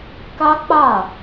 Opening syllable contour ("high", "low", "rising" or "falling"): high